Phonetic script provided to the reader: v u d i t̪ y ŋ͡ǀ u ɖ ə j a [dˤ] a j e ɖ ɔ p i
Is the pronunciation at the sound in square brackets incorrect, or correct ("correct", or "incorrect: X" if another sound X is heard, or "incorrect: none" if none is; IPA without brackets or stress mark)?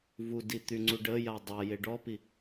correct